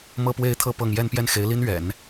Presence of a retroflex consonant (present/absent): absent